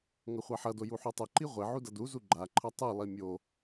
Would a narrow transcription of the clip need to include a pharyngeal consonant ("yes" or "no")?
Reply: yes